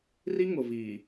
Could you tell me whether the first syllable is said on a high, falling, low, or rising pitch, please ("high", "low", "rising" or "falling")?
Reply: high